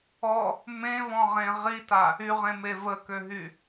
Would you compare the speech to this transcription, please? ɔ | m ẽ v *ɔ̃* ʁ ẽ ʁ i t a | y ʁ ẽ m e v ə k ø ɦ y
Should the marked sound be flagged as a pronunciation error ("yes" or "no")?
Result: no